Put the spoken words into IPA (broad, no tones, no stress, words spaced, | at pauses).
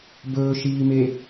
bɵː ʃiːme